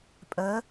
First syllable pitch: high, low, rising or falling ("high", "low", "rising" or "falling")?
rising